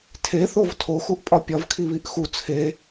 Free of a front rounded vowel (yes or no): yes